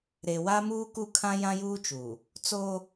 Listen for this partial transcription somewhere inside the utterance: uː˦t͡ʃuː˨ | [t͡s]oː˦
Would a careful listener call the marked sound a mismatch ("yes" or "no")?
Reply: no